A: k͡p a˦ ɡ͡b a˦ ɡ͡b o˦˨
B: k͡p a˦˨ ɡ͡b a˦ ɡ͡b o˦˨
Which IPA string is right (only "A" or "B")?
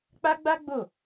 A